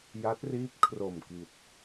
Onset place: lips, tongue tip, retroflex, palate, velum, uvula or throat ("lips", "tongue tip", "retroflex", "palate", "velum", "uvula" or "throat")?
palate